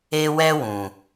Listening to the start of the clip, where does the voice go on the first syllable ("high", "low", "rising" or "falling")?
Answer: high